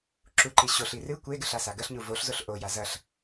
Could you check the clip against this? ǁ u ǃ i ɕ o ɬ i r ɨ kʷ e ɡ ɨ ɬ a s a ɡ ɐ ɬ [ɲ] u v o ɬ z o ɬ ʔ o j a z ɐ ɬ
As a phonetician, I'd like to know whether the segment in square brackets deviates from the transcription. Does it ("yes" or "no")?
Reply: no